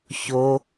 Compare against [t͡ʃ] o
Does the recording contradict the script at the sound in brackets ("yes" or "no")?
yes